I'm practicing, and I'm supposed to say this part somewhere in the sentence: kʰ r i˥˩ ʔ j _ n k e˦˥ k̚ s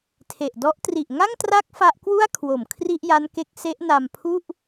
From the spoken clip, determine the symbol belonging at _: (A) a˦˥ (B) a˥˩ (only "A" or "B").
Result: A